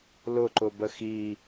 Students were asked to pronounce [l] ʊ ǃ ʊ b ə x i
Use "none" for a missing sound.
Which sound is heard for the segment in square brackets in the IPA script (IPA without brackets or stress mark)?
l